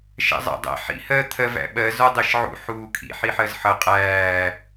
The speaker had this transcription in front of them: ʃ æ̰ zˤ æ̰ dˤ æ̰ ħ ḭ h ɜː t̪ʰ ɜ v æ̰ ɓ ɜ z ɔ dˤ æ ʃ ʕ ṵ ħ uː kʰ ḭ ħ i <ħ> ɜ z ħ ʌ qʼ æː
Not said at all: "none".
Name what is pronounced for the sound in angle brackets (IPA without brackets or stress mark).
ħ